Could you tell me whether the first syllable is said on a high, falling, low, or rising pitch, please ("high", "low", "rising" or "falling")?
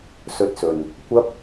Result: rising